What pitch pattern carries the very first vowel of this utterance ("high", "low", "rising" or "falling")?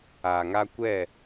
low